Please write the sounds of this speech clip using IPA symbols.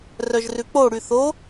r œ ʒ r ʉ k͡p o ɽ y θ o

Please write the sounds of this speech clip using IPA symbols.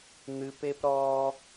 n̪ ɨ˧ p e˦ p ɾ ɔː˦

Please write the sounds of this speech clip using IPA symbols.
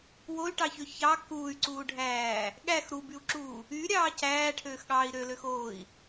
w o y̯ ʈ ɑ ç ø ç ɑ k uː y̯ ǀ uː ɖʱ æː | ɠ æ x ɾ u b y u̯ ǁ uː | y ɾʲ ɑː c æː ʈʰ øː x ɠ ɑː i̯ ɾ ø l ø x oː i̯

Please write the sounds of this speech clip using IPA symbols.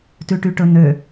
t ʉ ʈ y ʈ ɵ n ø

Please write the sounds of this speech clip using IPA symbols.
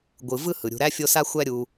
ɡʷ ɯ˨ v ɯ˥ h ɯ˩ ɾʲ ṳ˨ ɾ æ˥ fʲ o˦ s a˥ xʷ æ˦ ɾʲ u˨

